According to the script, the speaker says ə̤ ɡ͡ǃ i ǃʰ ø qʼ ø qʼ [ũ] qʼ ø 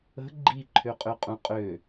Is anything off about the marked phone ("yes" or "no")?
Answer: no